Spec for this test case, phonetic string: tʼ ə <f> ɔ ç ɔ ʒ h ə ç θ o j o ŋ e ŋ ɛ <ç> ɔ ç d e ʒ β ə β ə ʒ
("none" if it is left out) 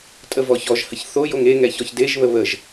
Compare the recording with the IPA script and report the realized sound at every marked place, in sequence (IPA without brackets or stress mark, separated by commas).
v, ç